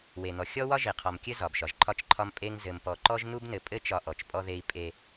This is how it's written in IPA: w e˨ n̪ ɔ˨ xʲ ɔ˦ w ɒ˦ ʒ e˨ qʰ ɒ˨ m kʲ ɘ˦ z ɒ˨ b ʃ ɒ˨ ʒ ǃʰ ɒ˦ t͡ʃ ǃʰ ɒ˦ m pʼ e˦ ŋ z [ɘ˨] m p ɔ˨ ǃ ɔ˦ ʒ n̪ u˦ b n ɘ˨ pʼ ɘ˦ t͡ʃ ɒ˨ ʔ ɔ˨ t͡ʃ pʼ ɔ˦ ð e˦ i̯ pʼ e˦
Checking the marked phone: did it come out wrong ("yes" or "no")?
no